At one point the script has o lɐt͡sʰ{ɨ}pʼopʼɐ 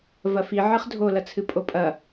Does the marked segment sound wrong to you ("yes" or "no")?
no